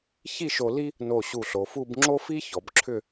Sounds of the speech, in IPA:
ç i˥˧ ʃ o˧ l i˥ | n o˧˩ ɕ u˧˩ ɬ o˩˧ f u˥˧ b ŋ͡ǁ o˥ f i˥ ç ɔ˩˧ b ǁʰ ʏ˥˧

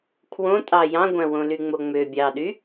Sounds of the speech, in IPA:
kʰ w õ tʼ ɑ j ɑ̃ ɡʷ æ̃ w õ l y ŋ͡m o ŋ͡m ø bʲ ɑ ɗ y

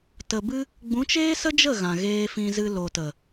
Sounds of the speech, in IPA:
t ə˨ b ɨ˧ | ɡ͡b ũ˨˦ t͡ʃ eː˦ s ə˦ d͡ʒ ə˦˨ ɣ ã˨ ɣ eː˧ f ĩ˧ z ɨ˧ l o˨ t ə˨

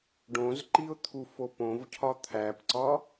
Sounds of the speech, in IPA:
ɖ õ z ǃ i ʊ̯ t̪ʰ u f o p õ v cʰ ɒ t̪ʰ æ p ǀ ɒ

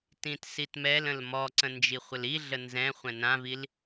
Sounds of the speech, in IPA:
t ĩ t s i t m ɛ l ə̃ l m ɔ ǀ ə̃ n d͡ʒ i χʷ ə l i ɮ ə n z ɛ̃ χʷ ɛ̃ n ã v i l

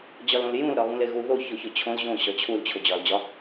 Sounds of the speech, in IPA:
d͡ʑ ɒ l õ l j ũ l ɾ ɒ ɣ ũ l e ɣ u ð o ç o ç o t͡ɕʰ õ l ʑ õ ɕ ɒ t͡ɕʰ u l t͡ɕʰ o d͡ʑ ɒ l d͡ʑ ɒ

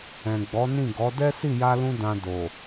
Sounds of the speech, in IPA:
ɛ̃˨ ɡ͡b ɔ˨˦ n ĩ˦˨ ɡ ɔ˨˦ d ɛ˦ s i˦˨ j a˧ l ũ˧ d ã˧ d o˨

